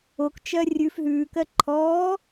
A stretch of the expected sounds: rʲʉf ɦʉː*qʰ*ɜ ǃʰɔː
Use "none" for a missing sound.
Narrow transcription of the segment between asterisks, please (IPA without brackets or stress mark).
k